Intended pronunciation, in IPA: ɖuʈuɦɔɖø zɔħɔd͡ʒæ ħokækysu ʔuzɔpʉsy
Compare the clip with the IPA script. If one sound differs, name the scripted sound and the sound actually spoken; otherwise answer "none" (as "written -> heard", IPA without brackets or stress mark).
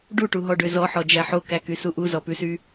none